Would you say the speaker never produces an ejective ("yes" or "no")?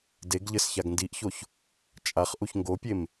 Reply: no